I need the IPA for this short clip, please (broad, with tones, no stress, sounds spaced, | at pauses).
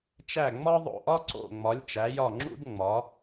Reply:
t͡ʃ æ˧˩ ŋ͡m ɒ˦ ðˤ o̰˧˩ ʔ ɒ˦ ǀ o̰˧˩ ŋ͡m ɒ˩˧ lʲ t͡ʃ æ˩˧ j ɒ˧˩ ŋ͡ǁ ṵ˦ d ŋ͡m ɒ˩˧